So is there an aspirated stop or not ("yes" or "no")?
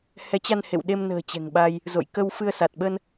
no